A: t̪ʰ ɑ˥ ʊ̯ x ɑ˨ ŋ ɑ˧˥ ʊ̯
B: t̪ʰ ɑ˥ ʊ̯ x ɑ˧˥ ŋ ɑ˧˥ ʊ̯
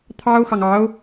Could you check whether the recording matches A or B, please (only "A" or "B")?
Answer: A